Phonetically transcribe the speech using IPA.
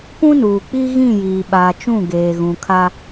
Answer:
p ũ˦ n uː˨ k͡p i˦ ɣ ĩ˦˨ j iː˨ ɓ aː˨ t͡ʃ ũ˦˨ ɡ eː˨ ɣ ũ˨ kʰ a˦

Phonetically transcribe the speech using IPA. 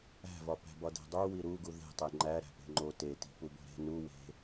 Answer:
æ̤ v ɒ p æ̤ b ɒ d e̤ dˤ u w i ɾ u ɡ u ð e̤ tˤ e ŋ͡ǃ æ ɾ æ̤ p e̤ ŋ͡ǃ o t e t i̤ p u b o̤ ɾ e̤ n u w e̤

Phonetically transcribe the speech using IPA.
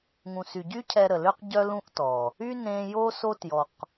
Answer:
ŋ ũ˨ s y˨ ɟ y˦ cʰ ɛ˧ ɾ ə˨ l ø˦ q ɟ œ˦ l ũ˦ ʔ t ɔ˨ | y˦ n ẽ˧ j o˧ s o˧ t j ɔ˨ q

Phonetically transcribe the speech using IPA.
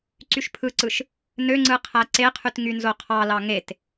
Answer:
ǀ y ʃ pʰ ɯ ǀ ɯ ʃ | n ø ŋ͡ǀ ɯ qʰ æ ǀ e qʰ y t ŋ y n z o qʰ ɑ l ɑ ŋ e t

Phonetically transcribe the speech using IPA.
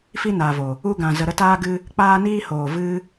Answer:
f i˦ n aː˨ v o˨ | u˧ ɡ ã˨ z ə˨ ɾ ə˧ t aː˧ ɡ ɨ˧ | k͡p aː˧ n iː˧ h oː˨ v ɨ˧

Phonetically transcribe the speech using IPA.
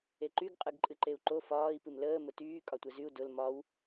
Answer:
e ǃ y ɡ qʼ ɨ ɡ ǃʼ ɨ ǃ e u̯ ǃ o f ɒː i̯ p ɨ m l əː m ʊ t yː kʼ ɒ tʷ ɛ z y u̯ d ʊ l m ɒ w

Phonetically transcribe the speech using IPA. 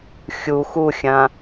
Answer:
xʲ u x u xʲ ã

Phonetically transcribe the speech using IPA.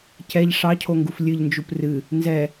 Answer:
c ɛ ʎ ʂ ɑ cʰ o ŋ ɡ u f lʲ ɨ ʎ n d͡ʒ u p r ɨ | n z ɛ

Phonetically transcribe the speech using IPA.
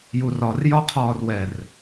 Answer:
j u r ɒ r j ɒ qʰ ɒː r w ɛ r

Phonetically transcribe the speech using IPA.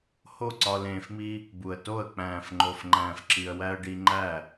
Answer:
h o˦˨ ǀ ɒ˧ l ẽː˧ f m i˦ | b u˨ ə̯ t o˦˨ ə̯ k͡p æ̃ː˨ f ŋ͡ǃ o˨ f ŋ͡ǃ æ̃ː˨ f ǁ i˨ ə̯ w æ˧ ə̯ ɖ i˧ ŋ͡ǃ æ˦˨

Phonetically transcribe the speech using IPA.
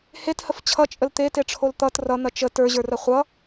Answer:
h e t h ə f t͡ɕʰ ʌ t͡ʃʼ ə l t̪ e t e ʈ͡ʂʰ o l t̪ ʌ t r ʌ n̪ ɐ t͡ʃ ə t ə˞ ʑ ə˞ r ɐ χʷ ʌ

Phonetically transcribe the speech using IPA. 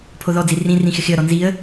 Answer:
pʰ o ð ɔ d͡z i r ĩ r ĩ x ɪ x ɪ ə̯ ɾ ɔ n z i ə̯

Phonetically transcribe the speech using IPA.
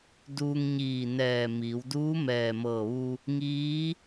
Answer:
d uː˧ ŋ ɲ iː˧˩ n ɛː˧˩ m iː˩˧ w d uː˧˥ m ɛː˧˩ m ɤː˧˩ ʋ u˧ | ŋ iː˧˥

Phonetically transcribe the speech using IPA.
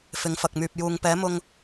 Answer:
f ɪ˨˥ ŋ f ɐ˨ k̚ m yː˨ p̚ j uː˨ ŋ p ɛː˨˥ m ʊ˧ ŋ

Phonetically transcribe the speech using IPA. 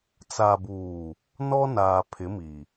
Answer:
t͡s a˨ b uː˨ | n ɔ˦ n aː˨ pʰ ɪ˨˦ m i˨

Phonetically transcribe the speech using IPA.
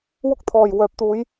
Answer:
w ʊ˥ k̚ t̪ʰ ɔː˨ j w œː˨ p̚ t̪ uː˨˧ j

